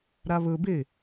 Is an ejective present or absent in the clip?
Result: absent